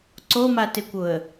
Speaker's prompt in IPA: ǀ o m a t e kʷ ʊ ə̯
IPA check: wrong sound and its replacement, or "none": none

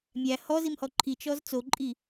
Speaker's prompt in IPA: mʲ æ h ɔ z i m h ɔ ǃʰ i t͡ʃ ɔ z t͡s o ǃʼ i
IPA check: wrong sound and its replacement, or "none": none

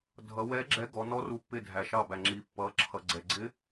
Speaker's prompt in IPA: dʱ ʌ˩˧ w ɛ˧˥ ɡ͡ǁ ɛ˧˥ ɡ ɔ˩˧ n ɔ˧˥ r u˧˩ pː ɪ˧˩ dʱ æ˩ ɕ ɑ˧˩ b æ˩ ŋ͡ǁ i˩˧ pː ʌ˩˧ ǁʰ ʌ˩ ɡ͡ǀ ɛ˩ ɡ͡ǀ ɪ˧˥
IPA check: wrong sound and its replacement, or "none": ɕ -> ʃ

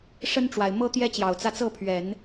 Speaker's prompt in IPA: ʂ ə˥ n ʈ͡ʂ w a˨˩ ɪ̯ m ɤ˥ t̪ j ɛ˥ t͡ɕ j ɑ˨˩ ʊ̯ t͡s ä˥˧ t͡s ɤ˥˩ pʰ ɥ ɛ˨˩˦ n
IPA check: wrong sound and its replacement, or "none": none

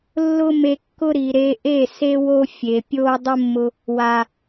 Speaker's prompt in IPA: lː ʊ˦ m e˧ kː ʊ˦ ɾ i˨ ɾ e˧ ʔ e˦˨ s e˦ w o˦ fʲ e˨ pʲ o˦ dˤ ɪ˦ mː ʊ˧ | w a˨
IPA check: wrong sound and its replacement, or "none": none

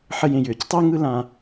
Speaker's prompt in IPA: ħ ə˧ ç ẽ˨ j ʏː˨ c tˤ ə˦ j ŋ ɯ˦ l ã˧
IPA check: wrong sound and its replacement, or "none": ç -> j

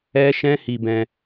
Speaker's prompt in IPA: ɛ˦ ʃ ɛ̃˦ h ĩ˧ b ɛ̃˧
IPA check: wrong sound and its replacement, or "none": ĩ˧ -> i˧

